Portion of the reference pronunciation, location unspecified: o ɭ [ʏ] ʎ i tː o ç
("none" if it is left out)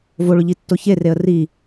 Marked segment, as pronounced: ʏ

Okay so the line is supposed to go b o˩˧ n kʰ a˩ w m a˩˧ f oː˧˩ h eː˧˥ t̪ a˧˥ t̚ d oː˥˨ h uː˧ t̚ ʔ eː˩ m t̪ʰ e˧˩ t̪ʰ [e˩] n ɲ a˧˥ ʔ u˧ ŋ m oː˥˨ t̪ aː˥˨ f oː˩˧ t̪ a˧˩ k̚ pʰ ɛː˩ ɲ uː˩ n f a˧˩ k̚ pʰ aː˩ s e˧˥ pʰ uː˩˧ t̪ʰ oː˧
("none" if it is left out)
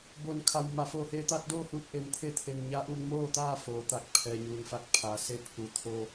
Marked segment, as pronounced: e˩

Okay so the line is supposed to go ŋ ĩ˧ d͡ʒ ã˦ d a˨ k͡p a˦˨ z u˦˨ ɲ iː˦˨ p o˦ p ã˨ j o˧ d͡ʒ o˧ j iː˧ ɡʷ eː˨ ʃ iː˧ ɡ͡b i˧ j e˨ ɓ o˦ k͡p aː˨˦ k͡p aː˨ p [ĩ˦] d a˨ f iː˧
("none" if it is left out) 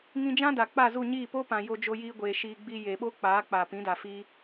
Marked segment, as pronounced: ĩ˨˦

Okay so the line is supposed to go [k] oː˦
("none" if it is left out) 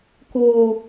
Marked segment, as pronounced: k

